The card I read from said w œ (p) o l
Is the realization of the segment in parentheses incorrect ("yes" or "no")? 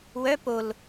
no